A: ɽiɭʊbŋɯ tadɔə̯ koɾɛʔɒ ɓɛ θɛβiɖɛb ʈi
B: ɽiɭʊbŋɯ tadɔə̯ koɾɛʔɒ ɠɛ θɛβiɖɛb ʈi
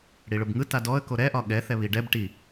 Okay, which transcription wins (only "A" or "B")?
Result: B